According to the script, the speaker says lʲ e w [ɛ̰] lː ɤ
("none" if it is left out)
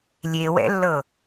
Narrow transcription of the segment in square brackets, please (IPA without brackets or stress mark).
ɛ̰